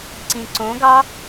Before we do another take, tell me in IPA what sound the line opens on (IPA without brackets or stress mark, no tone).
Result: ǀ